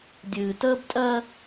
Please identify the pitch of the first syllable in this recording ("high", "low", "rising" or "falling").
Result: low